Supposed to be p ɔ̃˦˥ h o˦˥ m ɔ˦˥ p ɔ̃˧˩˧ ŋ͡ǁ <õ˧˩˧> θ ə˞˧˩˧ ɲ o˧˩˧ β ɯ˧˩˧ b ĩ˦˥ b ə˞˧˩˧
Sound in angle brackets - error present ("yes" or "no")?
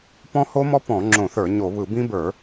no